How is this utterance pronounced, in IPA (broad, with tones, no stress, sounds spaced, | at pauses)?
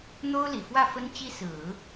n̪ o˥ ʊ̯ l i˨˩ f w ä˥˩ f ə˥ n t͡ɕ i˥ s ɹ̩˨˩˦